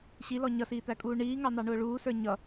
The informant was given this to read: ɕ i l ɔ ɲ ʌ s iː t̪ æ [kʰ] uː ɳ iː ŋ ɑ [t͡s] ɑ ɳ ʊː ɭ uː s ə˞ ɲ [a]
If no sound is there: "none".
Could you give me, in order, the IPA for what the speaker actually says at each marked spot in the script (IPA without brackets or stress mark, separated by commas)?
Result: kʼ, n̪, ʌ